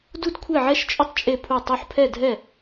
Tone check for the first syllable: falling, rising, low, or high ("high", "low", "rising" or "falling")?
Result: high